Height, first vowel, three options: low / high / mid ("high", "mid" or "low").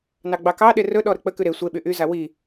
low